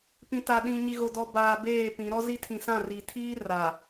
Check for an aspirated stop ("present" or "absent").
present